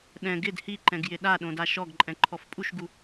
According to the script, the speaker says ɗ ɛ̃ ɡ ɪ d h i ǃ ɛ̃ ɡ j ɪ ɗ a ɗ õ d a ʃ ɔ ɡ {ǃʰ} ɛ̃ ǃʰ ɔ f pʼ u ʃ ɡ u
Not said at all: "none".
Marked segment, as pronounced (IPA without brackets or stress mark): ǃʼ